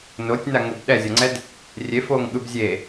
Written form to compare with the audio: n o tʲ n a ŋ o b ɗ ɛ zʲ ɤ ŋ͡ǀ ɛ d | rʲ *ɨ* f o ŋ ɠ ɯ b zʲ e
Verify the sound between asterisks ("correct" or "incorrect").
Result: incorrect